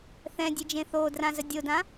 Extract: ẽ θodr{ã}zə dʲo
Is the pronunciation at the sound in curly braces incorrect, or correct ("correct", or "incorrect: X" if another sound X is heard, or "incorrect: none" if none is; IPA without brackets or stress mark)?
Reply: correct